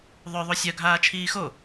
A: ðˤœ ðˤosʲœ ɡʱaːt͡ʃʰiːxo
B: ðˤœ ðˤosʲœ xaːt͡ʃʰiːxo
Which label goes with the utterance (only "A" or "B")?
A